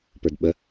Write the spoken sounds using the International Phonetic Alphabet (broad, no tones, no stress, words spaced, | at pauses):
pə˞dɓə